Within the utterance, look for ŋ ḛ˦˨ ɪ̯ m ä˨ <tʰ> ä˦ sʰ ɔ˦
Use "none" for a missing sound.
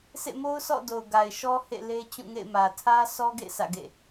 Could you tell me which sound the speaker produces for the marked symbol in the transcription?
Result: tʰ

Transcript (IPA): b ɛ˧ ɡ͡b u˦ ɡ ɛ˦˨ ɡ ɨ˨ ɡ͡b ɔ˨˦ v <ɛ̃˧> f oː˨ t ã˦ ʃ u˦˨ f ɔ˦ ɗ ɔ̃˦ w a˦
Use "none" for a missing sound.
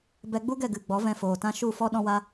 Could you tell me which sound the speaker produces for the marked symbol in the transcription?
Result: ɛ̃˧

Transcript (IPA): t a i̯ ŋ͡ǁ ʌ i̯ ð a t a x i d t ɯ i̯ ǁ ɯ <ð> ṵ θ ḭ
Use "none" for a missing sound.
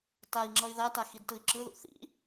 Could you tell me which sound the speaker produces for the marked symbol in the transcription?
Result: ð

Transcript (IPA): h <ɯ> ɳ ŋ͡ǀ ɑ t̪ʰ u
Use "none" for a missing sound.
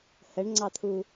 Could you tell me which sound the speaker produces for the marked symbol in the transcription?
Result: ə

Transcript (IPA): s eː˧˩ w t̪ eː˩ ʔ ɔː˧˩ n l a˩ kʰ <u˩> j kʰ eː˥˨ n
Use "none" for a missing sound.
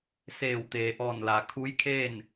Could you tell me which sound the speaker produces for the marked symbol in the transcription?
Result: u˧˥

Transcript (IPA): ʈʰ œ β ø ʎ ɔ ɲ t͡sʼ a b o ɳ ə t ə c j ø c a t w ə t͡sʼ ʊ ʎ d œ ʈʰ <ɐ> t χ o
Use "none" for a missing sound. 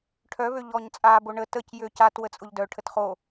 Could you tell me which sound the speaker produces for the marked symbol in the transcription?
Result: ə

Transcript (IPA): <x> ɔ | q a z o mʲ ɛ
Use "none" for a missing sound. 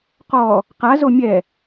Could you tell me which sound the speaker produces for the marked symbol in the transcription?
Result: q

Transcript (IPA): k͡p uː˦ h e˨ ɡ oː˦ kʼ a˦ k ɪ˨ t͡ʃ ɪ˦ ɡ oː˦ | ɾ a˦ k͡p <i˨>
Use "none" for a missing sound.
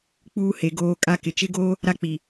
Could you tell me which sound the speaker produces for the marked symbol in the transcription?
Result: i˨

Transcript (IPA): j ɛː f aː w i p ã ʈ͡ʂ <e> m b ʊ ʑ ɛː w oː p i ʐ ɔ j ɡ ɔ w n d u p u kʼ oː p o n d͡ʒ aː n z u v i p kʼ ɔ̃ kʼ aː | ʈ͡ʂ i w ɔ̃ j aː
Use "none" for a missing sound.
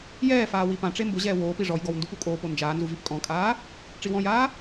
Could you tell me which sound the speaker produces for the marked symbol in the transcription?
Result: e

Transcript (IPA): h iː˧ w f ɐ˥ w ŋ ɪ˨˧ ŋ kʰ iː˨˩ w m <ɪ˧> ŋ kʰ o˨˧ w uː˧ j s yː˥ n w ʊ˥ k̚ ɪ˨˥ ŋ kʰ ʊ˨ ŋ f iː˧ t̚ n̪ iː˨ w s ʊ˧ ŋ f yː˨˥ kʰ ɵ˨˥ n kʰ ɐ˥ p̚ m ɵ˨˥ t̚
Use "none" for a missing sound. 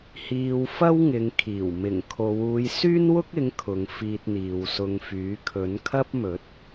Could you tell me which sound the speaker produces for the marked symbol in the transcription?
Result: ɪ˨˩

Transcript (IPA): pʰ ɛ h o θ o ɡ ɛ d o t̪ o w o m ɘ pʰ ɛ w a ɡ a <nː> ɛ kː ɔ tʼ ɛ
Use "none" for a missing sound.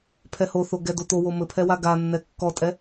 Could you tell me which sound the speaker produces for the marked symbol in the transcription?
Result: nː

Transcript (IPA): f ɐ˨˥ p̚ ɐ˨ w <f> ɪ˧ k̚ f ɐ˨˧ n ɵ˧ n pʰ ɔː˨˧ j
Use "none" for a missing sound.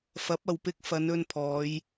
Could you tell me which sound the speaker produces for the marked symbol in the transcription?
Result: p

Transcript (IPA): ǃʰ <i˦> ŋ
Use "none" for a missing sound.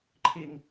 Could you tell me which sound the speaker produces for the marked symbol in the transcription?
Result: i˦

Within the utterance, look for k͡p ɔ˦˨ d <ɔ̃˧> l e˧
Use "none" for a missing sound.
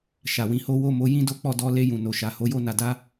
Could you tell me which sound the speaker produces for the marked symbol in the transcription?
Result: ɔ˧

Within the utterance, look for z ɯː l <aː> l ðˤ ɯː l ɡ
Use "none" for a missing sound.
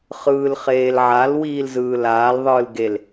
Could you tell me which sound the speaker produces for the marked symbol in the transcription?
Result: aː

